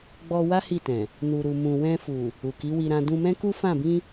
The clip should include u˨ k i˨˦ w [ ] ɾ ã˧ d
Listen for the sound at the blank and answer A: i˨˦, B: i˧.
B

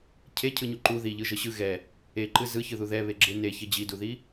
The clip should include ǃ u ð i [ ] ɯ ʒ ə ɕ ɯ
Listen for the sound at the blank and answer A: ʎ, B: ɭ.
A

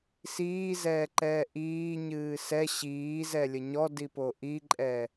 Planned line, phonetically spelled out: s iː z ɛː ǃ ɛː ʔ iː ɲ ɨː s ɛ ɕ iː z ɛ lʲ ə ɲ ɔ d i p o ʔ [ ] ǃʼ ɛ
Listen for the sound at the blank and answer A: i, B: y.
A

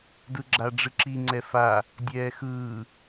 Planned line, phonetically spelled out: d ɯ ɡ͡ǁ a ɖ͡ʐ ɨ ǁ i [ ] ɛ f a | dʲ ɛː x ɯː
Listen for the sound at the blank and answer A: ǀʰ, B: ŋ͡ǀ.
B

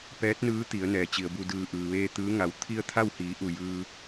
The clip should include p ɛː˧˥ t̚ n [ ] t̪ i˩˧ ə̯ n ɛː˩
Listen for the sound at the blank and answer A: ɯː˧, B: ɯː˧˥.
B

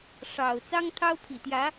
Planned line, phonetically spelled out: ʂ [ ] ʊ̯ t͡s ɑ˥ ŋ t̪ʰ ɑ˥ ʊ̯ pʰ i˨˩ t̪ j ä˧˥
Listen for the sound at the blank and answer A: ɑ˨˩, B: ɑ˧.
A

